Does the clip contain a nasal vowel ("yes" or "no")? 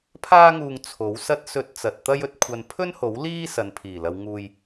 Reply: no